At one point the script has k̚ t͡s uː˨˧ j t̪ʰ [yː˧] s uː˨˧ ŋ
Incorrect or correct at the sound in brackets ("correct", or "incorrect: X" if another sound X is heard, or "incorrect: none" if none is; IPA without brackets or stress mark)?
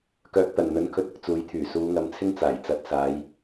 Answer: incorrect: yː˨˩